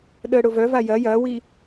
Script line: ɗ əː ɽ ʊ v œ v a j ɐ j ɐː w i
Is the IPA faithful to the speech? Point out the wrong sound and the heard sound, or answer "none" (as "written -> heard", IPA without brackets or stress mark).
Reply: none